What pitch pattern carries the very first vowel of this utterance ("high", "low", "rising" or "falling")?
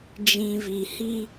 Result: low